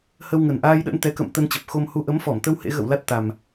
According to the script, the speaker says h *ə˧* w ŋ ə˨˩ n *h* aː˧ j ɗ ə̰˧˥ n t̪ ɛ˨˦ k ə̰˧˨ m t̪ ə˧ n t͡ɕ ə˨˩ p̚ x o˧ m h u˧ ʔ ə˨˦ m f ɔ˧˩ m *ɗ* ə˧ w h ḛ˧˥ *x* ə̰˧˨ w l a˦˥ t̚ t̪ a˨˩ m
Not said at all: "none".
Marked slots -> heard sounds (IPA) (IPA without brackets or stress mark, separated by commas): ə˧, ʔ, t̪, ɣ